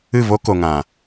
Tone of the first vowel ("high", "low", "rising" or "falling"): falling